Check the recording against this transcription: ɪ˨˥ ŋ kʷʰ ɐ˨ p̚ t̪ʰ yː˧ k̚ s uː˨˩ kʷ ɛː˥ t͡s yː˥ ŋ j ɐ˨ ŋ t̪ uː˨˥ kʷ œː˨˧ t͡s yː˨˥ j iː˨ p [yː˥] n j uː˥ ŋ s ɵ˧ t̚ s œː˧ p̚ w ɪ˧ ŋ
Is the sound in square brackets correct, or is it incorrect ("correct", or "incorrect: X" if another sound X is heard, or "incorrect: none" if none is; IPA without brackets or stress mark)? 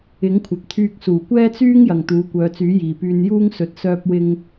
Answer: incorrect: yː˧